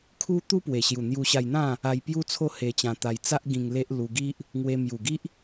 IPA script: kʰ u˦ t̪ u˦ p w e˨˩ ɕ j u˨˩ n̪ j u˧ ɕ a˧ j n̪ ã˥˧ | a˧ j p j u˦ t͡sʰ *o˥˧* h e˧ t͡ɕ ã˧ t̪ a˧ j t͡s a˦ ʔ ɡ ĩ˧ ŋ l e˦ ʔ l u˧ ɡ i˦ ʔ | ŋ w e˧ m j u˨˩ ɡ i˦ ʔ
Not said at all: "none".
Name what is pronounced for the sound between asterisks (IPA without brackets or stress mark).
o˥˧